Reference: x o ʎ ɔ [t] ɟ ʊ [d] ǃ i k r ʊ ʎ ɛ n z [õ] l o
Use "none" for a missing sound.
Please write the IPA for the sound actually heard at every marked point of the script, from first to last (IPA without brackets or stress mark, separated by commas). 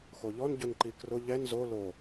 n, n, o